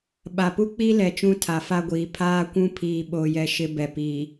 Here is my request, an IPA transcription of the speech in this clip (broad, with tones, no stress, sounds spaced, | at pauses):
ɓ a˨ p u˦ k͡p i˦ l ɛ˨ t͡ʃ ũ˦ tʰ a˨ f a˦ ɡʷ iː˨ pʰ aː˦ kʷ ũ˦ pʰ iː˦ ɓ o˦ j ɛ˦ ʃ ɪ˦ b ɛ˨ p iː˨